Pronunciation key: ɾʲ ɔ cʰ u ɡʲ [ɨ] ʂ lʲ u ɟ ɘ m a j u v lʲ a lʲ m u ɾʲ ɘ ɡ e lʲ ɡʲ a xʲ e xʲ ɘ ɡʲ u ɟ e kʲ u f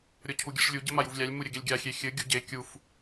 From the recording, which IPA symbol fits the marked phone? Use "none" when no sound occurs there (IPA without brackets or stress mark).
ɨ